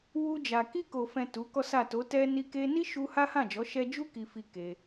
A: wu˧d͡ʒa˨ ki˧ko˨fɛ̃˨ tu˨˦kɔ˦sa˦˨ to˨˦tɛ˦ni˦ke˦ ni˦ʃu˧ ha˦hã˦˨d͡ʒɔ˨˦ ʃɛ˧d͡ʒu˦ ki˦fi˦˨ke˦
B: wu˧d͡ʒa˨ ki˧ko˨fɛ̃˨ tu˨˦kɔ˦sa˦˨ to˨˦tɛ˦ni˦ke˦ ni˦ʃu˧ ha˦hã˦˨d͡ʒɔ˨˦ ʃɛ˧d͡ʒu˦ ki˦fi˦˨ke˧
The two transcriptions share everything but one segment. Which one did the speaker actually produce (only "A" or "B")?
B